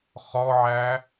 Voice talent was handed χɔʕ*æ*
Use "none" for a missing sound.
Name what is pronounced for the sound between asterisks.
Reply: æ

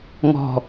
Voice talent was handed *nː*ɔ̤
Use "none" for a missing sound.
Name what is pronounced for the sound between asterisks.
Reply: ŋ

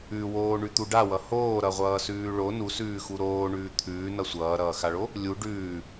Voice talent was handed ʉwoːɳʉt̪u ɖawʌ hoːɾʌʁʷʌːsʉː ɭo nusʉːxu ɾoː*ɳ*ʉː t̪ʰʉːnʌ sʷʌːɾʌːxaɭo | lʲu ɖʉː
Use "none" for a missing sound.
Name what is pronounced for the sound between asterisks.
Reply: ɳ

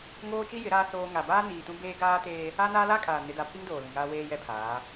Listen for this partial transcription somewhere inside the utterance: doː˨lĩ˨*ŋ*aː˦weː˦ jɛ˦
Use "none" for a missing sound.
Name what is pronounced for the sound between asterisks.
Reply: ŋ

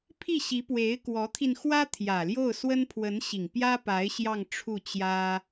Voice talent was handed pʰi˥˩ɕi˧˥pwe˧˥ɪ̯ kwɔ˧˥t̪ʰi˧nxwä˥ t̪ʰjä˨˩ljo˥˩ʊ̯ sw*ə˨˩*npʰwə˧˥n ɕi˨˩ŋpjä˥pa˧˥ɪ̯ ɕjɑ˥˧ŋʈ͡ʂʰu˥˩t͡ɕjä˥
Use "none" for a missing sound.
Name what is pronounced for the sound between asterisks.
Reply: ə˥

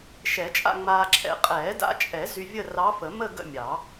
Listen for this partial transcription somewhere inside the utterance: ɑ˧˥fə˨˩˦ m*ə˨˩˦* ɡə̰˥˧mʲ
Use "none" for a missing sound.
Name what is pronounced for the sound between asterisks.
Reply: ə˥˧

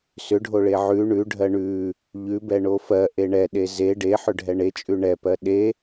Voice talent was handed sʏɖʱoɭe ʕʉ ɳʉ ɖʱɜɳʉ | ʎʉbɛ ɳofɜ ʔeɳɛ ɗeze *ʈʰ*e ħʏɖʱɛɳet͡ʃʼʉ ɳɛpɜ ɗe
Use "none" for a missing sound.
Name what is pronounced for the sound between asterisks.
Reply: ɖ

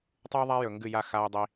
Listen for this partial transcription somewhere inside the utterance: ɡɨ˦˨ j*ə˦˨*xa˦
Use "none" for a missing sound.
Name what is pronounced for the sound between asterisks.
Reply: a˦˨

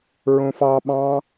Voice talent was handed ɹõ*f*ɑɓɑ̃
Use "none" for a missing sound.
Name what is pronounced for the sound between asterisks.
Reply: f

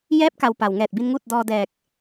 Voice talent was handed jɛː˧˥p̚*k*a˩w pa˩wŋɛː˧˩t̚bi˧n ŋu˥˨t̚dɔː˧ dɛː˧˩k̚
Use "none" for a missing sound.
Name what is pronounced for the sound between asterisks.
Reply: k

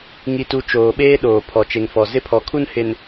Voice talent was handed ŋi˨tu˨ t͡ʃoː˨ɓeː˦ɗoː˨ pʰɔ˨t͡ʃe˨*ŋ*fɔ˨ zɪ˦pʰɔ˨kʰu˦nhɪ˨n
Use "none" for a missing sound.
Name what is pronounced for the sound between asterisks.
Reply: ŋ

